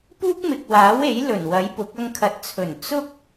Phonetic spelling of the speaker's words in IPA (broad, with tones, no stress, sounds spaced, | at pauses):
p uː˥ k̚ m ɪ˨ k̚ w aː˨˥ w e˨˥ j l ɵ˨˩ n w ɐ˨˥ j p ʊ˨˥ k̚ ɐ˧ ŋ kʰ ɐ˨ t̚ t͡sʰ ɵ˨˩ n t͡s ʊ˥ k̚